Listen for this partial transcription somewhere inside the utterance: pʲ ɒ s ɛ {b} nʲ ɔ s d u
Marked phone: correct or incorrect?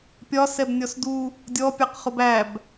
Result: correct